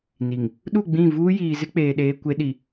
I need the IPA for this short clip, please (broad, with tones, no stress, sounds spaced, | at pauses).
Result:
n i˨ ŋ | ɗ u˦˨ ɡ͡b ĩ˦˨ v uː˦ j iː˨ z ɪ˦ k͡p eː˨ ɗ eː˦ kʷ e˦ ɗ i˨